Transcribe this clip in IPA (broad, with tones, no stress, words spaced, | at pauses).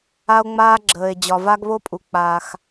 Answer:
a˧o̯ŋ͡maː˧ɡ͡ǁəː˩e̯ d͡ʑɒ˩va˧ɡβo˧pʼu˩ k͡paː˩x